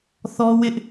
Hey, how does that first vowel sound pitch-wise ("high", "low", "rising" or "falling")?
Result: high